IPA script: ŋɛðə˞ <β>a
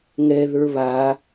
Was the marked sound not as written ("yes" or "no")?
no